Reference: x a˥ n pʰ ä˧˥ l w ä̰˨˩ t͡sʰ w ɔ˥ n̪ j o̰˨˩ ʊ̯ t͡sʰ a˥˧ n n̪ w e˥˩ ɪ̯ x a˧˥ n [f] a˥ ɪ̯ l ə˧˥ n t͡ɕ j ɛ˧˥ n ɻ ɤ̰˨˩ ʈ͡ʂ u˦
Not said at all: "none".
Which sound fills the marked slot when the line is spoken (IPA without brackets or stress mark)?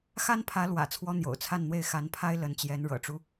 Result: pʰ